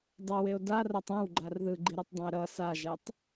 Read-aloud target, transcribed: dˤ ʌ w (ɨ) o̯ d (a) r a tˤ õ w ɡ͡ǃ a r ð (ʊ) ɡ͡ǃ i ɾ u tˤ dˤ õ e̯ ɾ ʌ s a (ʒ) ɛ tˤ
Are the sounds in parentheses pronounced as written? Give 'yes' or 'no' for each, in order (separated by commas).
no, yes, no, yes